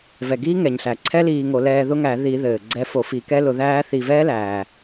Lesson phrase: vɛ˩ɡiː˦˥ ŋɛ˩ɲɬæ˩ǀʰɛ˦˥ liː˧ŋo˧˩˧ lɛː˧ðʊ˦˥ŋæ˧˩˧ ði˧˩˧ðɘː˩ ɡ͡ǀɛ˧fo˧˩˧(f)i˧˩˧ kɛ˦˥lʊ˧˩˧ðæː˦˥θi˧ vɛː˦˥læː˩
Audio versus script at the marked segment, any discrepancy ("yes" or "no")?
no